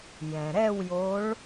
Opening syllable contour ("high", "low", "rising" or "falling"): low